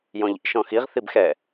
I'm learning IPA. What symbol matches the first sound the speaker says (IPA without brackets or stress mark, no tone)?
j